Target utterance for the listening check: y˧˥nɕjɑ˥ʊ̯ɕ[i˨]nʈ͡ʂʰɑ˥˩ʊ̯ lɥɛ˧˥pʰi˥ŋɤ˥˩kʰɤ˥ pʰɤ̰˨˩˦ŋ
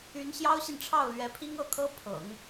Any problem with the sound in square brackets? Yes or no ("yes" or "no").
no